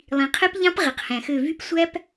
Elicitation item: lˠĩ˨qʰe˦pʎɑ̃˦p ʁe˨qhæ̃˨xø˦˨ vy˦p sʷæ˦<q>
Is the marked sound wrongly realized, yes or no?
yes